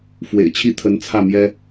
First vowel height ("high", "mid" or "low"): mid